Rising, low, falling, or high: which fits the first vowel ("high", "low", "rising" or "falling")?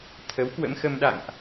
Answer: rising